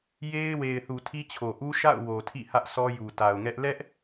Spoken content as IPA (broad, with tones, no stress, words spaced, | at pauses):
je˦ɪ̯we˨ɪ̯ θu˨tʰi˦t͡ɕʰo˨ ʔu˦ʃa̰˦˨ʊ̯ wo˨tʰḭ˦˨hä˦ʔ sɔ˦ju˨ta˨ʊ̯ŋɛ˦ʔ lɛ˦ʔ